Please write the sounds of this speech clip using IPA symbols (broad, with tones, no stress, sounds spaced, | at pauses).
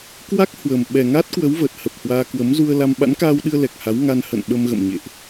k w a˦˥ k̚ h w ə˨˩ m ɓ ɛ˨˩ ŋ a˦˥ t̚ k w ə˨˦ w v ə˨˩ t̚ h ə˨˩ p̚ h w aː˧ k w ə˨˦ m z u˧ ə̯ l a˧ m ɓ a̰˧˥ n k aː˧ w ɗ ɨ˧ ə̯ l ɛ˨˩ k̚ h a˨˦ w ŋ a˧ n h ə̰˧˨ n ɓ ə˧ m ɣ ə̰˧˨ m ɲ ḛ˧˨ ʔ